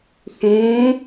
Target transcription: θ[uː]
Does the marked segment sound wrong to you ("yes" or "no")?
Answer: yes